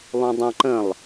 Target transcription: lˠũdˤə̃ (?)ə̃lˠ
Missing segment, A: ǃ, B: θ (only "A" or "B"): A